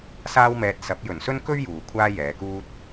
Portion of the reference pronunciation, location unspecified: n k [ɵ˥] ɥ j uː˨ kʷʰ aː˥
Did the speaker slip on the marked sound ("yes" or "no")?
no